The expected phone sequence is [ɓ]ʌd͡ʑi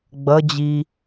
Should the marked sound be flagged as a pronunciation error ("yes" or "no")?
yes